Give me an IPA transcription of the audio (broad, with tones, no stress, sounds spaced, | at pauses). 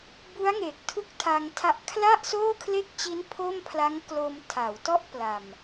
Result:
b u˦˥ a̯ ŋ e˨˩ k̚ tʰ u˥˩ k̚ tʰ a˧ ŋ tʰ a˦˥ ʔ kʰ l a˥˩ ʔ s oː˥˩ kʰ l e˥˩ k̚ t͡ɕ i˦˥ n pʰ o˥˩ m pʰ l a˦˥ ŋ k l o˧ m tʰ a˩˦ w t ɔ˥˩ ʔ p l a˨˩ m